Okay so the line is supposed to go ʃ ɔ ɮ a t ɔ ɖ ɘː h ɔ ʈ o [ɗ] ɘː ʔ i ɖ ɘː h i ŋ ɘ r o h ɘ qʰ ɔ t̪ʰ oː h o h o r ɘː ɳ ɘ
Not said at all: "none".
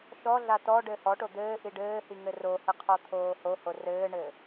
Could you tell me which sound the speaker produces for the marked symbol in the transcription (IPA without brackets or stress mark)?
d̪